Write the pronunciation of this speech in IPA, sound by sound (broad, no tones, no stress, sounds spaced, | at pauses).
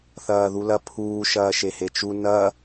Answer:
θ ɐː ð u l ɐ pʰ uː ʃ ɐː ʃ e h e t͡ʃ u n ɐ